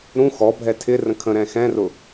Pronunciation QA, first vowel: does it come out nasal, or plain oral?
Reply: nasal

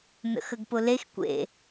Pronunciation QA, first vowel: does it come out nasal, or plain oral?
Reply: oral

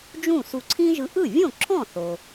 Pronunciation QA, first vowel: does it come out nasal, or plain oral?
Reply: nasal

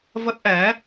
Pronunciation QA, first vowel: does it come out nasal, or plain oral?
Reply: oral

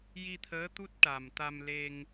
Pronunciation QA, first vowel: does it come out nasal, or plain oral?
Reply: oral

